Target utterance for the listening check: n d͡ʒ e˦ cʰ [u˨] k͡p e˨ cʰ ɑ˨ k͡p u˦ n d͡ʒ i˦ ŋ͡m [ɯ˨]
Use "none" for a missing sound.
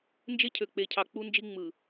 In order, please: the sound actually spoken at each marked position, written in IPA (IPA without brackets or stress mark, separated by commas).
ø˨, ɯ˨